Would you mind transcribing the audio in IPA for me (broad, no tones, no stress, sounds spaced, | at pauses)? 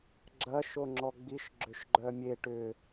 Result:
ɡ͡ǁ ɐ ʃ o ŋ͡ǁ ɔ ɡ͡b i ʃ ɡ͡ǁ ʏ ʃ ɡ͡ǃ œ mʲ e ʈ ʏ